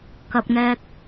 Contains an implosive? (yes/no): no